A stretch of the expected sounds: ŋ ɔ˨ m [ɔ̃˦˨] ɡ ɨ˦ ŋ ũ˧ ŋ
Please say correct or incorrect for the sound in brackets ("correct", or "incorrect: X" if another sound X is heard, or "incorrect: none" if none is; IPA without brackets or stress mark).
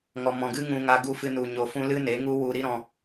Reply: incorrect: ɔ̃˨